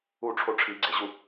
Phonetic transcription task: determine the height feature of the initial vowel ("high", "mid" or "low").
high